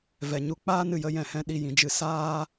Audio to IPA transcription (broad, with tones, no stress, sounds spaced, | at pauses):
v ɛ˨ ɲ u˧ k͡p aː˦ n ɨ˨ j ə˧ j ɛ̃˨ h ɛ̃˧ ɗ i˦˨ j ĩ˧ d͡ʒ ɨ˧ s aː˦